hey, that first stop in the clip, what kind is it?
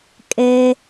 ejective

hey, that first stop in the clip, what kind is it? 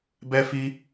plain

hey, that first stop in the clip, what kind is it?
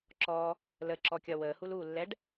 click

